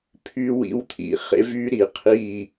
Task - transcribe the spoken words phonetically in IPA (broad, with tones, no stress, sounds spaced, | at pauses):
pʰ y˧ w ḭ˧ w t̪ʰ ḭ˨ χ ḛ˧ v y˧ ɾ i˨ qʰ i˦˨